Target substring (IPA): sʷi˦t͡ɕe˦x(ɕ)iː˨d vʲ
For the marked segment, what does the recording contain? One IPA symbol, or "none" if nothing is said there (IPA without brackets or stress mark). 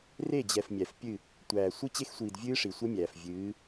sʷ